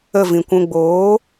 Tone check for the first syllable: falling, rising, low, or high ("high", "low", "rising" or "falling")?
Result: falling